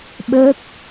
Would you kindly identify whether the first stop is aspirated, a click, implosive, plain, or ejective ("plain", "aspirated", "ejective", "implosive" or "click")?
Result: implosive